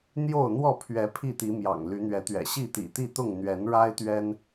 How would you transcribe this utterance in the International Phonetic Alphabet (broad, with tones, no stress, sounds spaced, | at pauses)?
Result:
n̪ j o˥˨ ʊ̯ n̪ w ɔ˥˨ pʰ ɥ ɛ˨˦ pʰ i˥˨ t̪ i˨˦ m j ɑ̰˨˩ ŋ l y˨˦ n̪ ɥ ɛ˨˦ t̪ ɥ ɛ̰˨˩ ɕ i˥˨ t̪ ḭ˨˩ t̪ i˥˨ t̪ ʊ˥˨ ŋ n̪ ɥ ɛ˨˦ n ɻ a˦ ɪ̯ t̪ ɥ ɛ˦ n